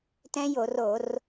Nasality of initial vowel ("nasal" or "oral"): nasal